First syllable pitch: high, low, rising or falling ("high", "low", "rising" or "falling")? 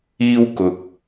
high